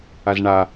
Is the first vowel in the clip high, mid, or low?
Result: low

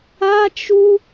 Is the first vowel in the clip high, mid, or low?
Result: low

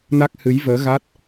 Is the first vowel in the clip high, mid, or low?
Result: low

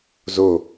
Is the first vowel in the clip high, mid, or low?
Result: mid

